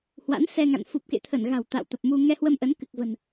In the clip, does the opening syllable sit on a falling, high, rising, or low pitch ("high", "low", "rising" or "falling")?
rising